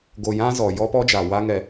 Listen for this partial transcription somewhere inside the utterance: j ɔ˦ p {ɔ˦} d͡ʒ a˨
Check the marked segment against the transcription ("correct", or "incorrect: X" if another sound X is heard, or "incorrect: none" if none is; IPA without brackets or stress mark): correct